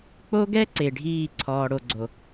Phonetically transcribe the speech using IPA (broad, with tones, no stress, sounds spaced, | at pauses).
k͡p o˦ ɡ ɛ˦ ǀ e˨ ɖʱ iː˦˨ ǀʰ ɔː˨ ɽ o˨ ɡ͡ǀ o˨